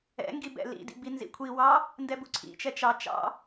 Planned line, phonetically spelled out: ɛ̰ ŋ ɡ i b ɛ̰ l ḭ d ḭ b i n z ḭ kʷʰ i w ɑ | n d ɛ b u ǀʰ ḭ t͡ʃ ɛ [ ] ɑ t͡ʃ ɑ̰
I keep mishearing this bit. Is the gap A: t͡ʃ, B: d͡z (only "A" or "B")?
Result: A